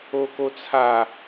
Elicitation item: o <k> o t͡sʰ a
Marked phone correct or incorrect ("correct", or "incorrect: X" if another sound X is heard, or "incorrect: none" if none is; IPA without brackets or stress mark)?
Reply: correct